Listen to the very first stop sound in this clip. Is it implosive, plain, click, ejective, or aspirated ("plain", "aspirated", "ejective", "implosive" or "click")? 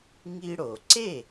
click